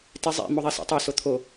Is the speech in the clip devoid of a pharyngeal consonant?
yes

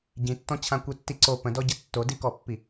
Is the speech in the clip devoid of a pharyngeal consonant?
yes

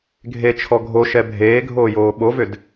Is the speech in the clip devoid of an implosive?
no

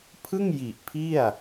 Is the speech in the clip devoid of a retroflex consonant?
yes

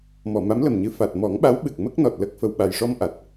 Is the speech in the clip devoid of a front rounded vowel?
yes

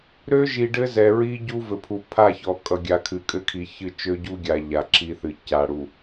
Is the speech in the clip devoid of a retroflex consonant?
no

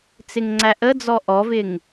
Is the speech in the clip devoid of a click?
no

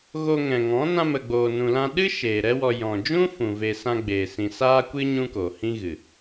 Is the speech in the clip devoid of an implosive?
no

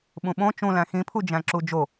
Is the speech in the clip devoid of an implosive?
no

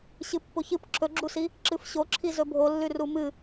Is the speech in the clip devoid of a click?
no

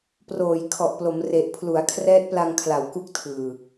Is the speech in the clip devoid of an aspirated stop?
no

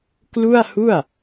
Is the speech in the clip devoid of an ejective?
yes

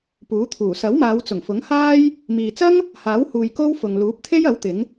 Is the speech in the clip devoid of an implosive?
yes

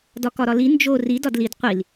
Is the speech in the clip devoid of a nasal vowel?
yes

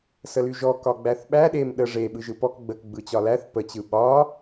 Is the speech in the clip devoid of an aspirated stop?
yes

